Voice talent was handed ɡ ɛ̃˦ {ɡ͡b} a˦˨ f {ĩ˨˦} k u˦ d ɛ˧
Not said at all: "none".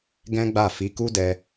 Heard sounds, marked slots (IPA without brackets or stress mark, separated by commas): ɡ͡b, i˨˦